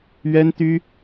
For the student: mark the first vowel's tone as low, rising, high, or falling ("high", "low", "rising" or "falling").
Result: high